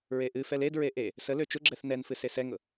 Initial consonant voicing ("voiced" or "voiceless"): voiced